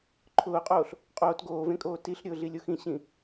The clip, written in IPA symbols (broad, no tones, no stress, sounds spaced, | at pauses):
ǃʰ ʊː qʼ oː ɬ | qʼ oː t ɡ oː v ẽ kʼ oː t i ɬ ɾʲ ʊː ɮ i lʲ o x ĩ ɕ ĩ